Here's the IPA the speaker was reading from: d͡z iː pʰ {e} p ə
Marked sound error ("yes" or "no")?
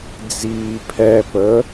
yes